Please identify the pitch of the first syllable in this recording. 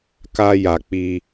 high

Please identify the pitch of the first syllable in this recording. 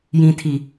low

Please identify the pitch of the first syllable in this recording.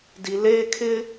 high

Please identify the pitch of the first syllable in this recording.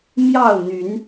falling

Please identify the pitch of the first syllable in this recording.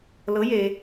rising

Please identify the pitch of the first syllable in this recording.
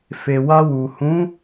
low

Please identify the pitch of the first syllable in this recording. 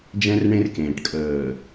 high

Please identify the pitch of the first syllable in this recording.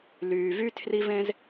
low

